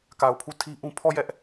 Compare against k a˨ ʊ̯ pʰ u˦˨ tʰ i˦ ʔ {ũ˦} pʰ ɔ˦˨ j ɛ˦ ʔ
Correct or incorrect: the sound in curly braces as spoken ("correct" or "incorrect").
correct